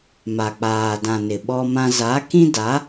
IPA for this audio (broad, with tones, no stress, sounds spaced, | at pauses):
m a˨ k͡p aː˨ d ã˨ n ɪ˨ ɓ ɔ˦ m ã˦ z a˨˦ k ĩ˦ d a˨˦